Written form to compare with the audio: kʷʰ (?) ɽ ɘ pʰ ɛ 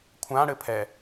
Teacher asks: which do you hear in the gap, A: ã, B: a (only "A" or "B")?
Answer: A